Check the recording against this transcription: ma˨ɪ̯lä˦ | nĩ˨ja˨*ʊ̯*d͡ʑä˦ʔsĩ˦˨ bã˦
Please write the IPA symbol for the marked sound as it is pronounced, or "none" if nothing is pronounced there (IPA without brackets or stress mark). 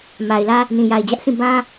ɪ̯